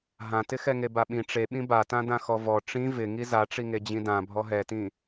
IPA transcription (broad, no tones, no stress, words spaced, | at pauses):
ɦãtɪxɛŋe baɓĩ ʈ͡ʂeɓĩ batãdã xɔvɔ ʈ͡ʂĩ vɪ ŋizaʈ͡ʂiŋe d͡ʑĩdã bʱɔɦɛtĩ